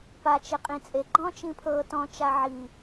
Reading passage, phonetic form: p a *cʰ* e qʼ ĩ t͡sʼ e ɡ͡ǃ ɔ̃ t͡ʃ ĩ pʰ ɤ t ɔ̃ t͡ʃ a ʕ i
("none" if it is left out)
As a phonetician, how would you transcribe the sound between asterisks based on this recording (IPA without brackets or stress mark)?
t͡ʃ